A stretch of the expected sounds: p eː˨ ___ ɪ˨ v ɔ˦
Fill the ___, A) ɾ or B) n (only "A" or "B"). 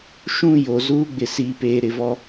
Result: A